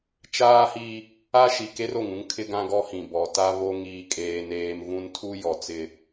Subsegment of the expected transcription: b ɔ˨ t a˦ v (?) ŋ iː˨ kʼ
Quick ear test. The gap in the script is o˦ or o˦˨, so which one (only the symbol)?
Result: o˦